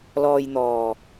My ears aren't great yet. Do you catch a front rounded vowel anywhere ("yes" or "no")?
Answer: no